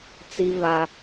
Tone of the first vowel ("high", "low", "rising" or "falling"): high